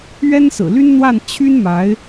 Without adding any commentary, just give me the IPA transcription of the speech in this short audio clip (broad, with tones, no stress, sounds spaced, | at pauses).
ɥ ɛ˥ n s ɹ̩˨˩ l y˥ n n̪ w a˥˩ n t͡ɕʰ y˥ n m a˧˥ ɪ̯